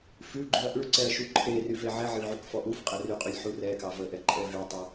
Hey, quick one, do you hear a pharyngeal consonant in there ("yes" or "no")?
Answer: yes